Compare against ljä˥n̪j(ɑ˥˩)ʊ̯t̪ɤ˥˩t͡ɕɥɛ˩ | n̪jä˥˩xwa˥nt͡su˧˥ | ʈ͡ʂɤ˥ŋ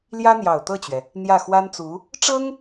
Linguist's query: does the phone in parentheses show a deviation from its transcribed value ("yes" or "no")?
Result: yes